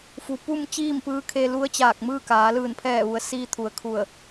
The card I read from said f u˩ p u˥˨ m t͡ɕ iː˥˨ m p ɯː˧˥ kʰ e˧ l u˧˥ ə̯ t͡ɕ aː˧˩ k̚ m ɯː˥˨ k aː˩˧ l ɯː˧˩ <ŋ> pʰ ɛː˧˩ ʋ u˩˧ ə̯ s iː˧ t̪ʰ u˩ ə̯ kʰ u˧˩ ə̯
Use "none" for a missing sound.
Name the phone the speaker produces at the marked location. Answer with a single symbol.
n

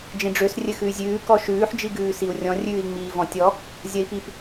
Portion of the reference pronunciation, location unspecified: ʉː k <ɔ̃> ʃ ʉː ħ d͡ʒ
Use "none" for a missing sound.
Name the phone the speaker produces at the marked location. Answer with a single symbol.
ɔ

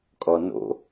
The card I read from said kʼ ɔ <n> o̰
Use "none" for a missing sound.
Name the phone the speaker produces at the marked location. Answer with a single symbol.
n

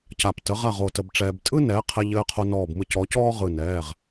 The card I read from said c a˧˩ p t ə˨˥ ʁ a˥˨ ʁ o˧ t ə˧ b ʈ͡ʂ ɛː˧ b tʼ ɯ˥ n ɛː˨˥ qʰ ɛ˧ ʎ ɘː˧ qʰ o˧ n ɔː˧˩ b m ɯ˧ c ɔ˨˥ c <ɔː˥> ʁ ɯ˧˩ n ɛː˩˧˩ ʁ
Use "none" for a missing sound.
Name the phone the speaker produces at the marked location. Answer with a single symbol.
ɔː˥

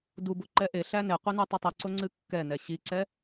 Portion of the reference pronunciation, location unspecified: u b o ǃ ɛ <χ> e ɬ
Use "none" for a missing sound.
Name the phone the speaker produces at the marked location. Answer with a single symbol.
ʔ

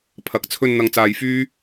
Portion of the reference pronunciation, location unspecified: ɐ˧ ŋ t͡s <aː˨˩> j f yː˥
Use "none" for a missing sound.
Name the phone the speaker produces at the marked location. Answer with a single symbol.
aː˧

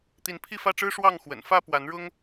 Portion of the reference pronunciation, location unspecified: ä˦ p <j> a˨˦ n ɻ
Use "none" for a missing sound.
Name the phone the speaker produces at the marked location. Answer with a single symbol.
w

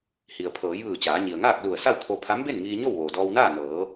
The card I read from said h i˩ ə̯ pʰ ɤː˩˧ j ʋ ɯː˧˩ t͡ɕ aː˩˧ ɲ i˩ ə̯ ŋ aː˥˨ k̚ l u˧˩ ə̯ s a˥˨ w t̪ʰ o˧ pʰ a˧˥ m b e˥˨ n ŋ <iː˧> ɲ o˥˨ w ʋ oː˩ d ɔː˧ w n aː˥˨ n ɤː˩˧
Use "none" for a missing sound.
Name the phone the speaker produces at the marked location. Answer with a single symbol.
iː˧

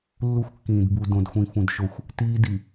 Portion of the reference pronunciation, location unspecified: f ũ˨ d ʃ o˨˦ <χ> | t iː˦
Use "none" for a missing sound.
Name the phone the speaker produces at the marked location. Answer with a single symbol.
xʷ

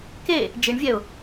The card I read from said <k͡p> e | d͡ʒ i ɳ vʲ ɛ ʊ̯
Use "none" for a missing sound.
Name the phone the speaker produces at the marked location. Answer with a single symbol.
k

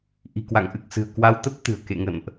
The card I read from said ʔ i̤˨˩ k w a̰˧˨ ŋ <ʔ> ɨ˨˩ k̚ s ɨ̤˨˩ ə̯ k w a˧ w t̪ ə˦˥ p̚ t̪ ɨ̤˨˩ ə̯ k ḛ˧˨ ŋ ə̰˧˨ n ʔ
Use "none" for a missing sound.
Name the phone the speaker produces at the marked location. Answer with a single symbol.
ʔ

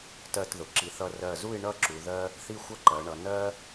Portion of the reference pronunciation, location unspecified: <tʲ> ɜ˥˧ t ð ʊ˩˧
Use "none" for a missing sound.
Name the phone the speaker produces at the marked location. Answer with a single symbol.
t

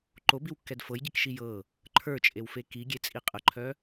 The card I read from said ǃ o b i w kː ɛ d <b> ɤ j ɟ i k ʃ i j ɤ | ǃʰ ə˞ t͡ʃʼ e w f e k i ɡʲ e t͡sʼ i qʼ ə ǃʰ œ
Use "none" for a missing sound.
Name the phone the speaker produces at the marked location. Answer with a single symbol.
f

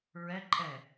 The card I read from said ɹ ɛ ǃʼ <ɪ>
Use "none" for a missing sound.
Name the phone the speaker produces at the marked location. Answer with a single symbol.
ɛ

